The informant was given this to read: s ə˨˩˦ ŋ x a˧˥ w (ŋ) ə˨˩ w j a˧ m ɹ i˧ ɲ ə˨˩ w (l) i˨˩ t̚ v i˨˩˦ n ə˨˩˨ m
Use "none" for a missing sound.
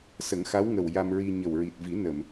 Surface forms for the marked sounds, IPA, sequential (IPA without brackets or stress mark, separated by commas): ŋ, ɹ